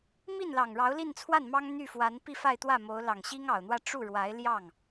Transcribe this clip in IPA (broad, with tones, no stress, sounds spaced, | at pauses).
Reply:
m i˥˩ n l ɑ˨˩ ŋ ɻ ɑ˧˥ ʊ̯ l i˥˧ n t͡sʰ w a˥˩ n m ɑ˥ ŋ n̪ y˥˩ f w a˧˥ n p i˥˧ f a˥˧ ɪ̯ t̪ w ä˥˩ m o˧˥ ʊ̯ l ɑ˨˩ ŋ ɕ i˥ ŋ ɑ˨˩ ʊ̯ n̪ w ä˥˧ ʈ͡ʂ u˥˩ ɻ w a˧˥ ɪ̯ l j ɑ˥˩ ŋ